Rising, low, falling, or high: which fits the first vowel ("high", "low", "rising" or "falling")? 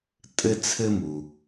high